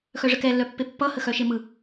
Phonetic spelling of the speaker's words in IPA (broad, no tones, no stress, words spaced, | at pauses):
xœʐəkɛ lːœpːepːʌ həxœʃemɯ